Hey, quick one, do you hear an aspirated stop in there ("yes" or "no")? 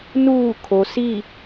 yes